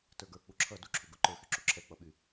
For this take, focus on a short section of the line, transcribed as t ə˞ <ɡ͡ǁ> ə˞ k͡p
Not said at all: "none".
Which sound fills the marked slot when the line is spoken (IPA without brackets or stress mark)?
ɡ